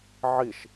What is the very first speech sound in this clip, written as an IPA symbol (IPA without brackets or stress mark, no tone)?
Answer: ʕ